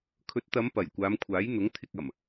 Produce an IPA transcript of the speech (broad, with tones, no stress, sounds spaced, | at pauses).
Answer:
kʰ ɵ˨˥ t̚ t̪ ɐ˨˧ m p ɐ˨˩ j kʷ aː˨˧ m kʷʰ aː˨˥ j n̪ ʊ˨˥ ŋ t̪ʰ ɪ˨ k̚ ɐ˨˩ m